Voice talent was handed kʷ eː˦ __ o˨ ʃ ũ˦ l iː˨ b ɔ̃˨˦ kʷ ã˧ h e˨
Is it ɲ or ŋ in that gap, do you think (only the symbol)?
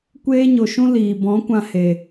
ɲ